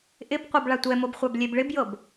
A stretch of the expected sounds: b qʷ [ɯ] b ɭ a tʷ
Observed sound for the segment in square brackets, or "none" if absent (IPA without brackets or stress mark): ɤ